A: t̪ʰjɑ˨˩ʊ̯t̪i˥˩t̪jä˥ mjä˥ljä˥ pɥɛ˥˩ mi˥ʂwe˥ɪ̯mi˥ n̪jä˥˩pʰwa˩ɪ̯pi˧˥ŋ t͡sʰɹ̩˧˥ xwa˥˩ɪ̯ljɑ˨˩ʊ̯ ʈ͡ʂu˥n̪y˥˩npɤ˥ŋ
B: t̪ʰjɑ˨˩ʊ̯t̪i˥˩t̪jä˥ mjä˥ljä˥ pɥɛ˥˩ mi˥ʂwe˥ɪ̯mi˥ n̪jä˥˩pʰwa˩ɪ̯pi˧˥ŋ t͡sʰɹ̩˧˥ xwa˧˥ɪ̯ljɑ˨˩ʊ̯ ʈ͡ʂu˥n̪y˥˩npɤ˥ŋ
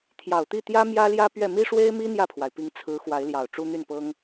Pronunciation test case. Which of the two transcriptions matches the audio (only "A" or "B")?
B